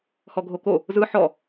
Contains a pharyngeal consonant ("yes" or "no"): yes